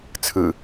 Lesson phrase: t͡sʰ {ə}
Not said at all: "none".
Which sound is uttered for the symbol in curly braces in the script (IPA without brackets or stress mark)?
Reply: ɯ